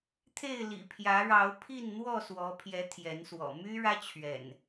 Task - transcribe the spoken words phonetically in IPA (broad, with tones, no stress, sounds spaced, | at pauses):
t̪ʰ e˥˨ ɪ̯ l ḭ˨˩ pʰ j ä˨˦ ɻ ɑ˨˦ ʊ̯ pʰ i˥˨ n n̪ w ɔ˥˨ s w ɔ˨˦ pʰ j ɛ˨˦ t̪ʰ j ɛ˨˦ n s w ɔ̰˨˩ m y˦ ɻ ä˦ t͡ɕʰ ɥ ɛ̰˨˩ n